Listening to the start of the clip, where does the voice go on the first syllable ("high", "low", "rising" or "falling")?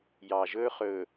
low